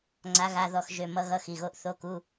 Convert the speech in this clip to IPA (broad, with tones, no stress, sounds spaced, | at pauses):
ŋ͡ǀ a˧˥ ɣ a˧˥˧ ð ɔ˦˨ x ʒ ø˦˨ m ʌ˧˥ ɣ ʌ˧˥˧ x i˩˧˩ ɣ o˧˥ ʔ θ o˧˥˧ k u˧˥˧